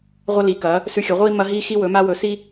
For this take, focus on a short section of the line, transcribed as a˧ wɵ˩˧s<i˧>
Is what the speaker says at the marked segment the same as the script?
yes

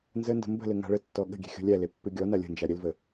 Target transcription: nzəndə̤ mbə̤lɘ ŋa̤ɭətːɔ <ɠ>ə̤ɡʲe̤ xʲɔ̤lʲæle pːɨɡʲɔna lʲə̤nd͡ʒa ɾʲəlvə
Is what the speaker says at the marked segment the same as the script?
yes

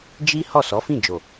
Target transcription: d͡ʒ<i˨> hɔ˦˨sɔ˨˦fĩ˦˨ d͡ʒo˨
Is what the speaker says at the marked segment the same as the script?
no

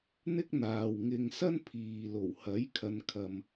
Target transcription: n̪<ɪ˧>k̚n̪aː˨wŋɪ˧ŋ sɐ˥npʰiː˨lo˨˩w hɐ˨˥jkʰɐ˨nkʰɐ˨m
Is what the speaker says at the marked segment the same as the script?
no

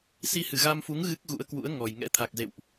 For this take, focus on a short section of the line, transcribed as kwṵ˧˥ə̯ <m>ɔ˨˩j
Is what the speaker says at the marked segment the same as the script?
no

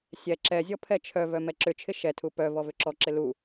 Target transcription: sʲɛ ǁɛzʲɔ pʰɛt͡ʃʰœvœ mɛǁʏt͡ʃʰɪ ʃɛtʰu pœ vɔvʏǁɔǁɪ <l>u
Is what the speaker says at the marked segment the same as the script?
yes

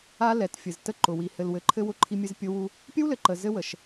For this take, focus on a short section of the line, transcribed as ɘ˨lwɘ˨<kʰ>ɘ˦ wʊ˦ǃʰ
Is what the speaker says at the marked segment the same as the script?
no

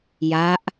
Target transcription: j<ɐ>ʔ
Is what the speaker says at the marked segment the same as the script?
no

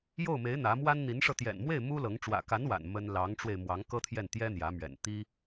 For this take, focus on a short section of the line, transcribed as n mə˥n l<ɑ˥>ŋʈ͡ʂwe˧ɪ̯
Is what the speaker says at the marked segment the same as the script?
no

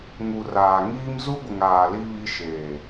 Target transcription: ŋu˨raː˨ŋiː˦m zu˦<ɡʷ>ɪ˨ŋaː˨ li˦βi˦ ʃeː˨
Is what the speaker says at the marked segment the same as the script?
yes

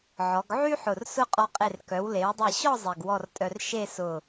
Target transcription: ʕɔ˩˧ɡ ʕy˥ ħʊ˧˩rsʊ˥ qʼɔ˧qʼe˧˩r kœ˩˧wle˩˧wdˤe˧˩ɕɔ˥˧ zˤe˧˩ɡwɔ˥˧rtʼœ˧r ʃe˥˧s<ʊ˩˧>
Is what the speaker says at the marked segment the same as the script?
no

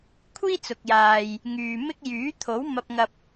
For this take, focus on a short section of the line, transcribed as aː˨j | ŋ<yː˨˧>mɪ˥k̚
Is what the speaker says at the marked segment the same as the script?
no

